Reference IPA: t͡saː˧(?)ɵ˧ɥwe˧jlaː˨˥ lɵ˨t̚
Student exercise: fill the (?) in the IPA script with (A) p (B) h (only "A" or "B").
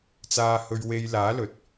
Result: B